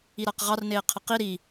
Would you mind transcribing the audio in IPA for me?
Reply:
i ɾ a q ʁ ɑ r n eː qʰ ə q i ɾ i

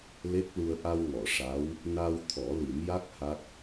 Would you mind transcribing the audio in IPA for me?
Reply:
l e˦˥ k̚ l u˧ ə̯ ʔ a˧ w ŋ ɔ˨˩˨ ʂ a˧˥ w | n a˧ w t̪ʰ ɔ˨˩˦ l i˨˩˦ m j a˦˥ k̚ h a˦˥ k̚

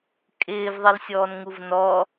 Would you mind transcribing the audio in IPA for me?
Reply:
kʼ ɪː v ðˤ i l sʲ ɔː n ŋ u v n ɔ

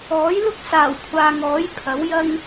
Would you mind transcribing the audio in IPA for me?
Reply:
ɔː˨˥ j l ʊ˥ k̚ s aː˨˩ w kʷʰ aː˨ ŋ ɔː˨˥ j pʰ ɐ˨˥ w j ɐ˥ ŋ

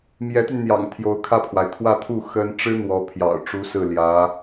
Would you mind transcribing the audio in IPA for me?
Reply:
m j ɛ˧˥ t̪ y˧ n n̪ j ɑ̰˨˩ ŋ t̪ʰ j o˧˥ ʊ̯ kʰ ä˥˩ pʰ w a˩ ɪ̯ t̪ʰ w ä˥˧ t̪ʰ u˥˩ x ə˥ n ʈ͡ʂ ɻ̩˥ n̪ w ɔ˧˥ pʰ j ɑ̰˨˩ ʊ̯ ʈ͡ʂ u˧˥ s ɹ̩˥˩ l j ä˧˥

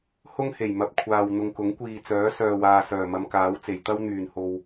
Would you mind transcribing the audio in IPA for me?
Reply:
h ʊ˥ ŋ h e˨˩ j m ɐ˨ p̚ kʷʰ aː˨ w n̪ ʊ˨ ŋ k ʊ˨˥ ŋ kʷ iː˨ t͡s œː˨˥ s œː˨ w aː˨ s œː˨˩ m ɐ˨˧ m k aː˨˥ w t͡s e˨˩ j t̪ ɐ˥ w n̪ yː˨˩ n h o˨ w

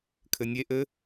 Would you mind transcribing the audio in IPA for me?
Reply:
kʰ ɘ nʲ e ʔ ɘ

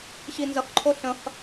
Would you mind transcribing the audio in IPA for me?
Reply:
ɕ i n z ə χ ǃʰ o ɬ ə̃ χ

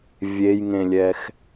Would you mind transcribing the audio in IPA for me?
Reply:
vʲ e j ŋ ẽ lʲ ɛ x

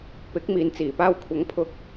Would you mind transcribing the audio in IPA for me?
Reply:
p ɪ˨˥ k̚ m iː˨ n t͡s iː˨˩ p aː˧ w kʷʰ ɐ˨˥ ŋ pʰ ʊ˧ k̚

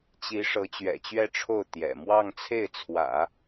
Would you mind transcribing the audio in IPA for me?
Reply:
t͡ɕ i˧˥ ʂ ɤ˧˥ t͡ɕ ɥ ɛ̰˨˩ t͡ɕ ɥ ɛ˥˧ ʈ͡ʂʰ o˥˩ ʊ̯ t̪ j ɛ̰˨˩ m w ɑ˥˧ ŋ t͡sʰ e˥˩ ɪ̯ t͡sʰ w ä̰˨˩˦

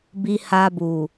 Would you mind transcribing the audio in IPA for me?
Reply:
b i˨ h a˨ b u˨

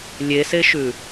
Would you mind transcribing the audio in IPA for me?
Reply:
lʲ e s e ʃ ʉ

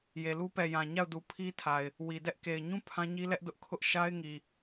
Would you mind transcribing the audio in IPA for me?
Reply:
j e˨ l u˦ p ɛ˨ j ã˨ ɲ a˦˨ ʊ̯ d u˨ pʰ i˦ tʰ a˨ ɪ̯ | w i˨ d ɛ˦ ʔ k e˨ ɪ̯ ɲ ũ˦ pʰ ã˦ ɲ i˦ l ɛ˦ ʔ d ʊ˦ ʔ kʰ ʊ˦ ʔ ʃ a˦ ɪ̯ ŋ i˨

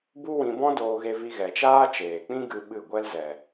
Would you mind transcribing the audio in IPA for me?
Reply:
b u˦ w ĩ˧ b ɔ̃˦ d oː˧ ɣ e˧ v i˧ ɣ ɛ˨ t͡ʃ aː˦ t͡ʃ eː˨ k͡p ĩ˦ ɡ ɨ˧ ɓ ɨ˦˨ ɡʷ ɛ˦ l z ɛ˨

